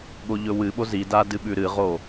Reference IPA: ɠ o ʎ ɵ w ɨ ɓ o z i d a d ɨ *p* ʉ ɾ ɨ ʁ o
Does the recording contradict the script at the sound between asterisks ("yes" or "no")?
yes